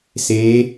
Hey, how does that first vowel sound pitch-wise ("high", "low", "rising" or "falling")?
rising